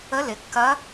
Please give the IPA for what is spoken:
ə˧˥lɪ˩˧kːɐ˧˥

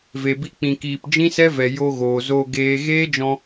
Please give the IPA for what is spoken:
ve˨bi˧ k͡pĩ˨kiː˨p d͡ʒĩ˦sɛ˦vɛ˨ jo˧ɣoː˨zoː˧ ɡeː˧ ɣeː˦d͡ʒɔ̃˧

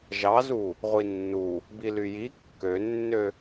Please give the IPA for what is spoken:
ʒɑzu | ʁʷinːu | bilyji kːønːø

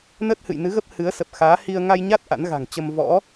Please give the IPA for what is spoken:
nəː˦˥t̚hɨ̰˧˨jnɨ˨˦ɣə˦˥p̚ hɨ˨˦ə̯sə˨˩p̚xaː˨˦ hi˧ə̯ ŋa˧jɲa˦˥t̚ ʔa̰˧˥nɣa̤˨˩ŋt͡ɕə˧m vɔ̰˧˥

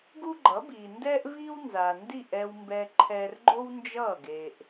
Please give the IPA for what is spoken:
ɡu˥ɡ͡ǃʌ˩˥biː˩ ndɛː˥ʔviː˥w nza˩ndi˥˩ʔ ɛ˧wmbɛ˧ ǃʰɛː˧rɡ͡ǃo˥wnd͡ʒʌː˥˩ ɡe˩ʔ

